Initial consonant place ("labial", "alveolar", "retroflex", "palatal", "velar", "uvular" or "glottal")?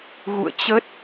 velar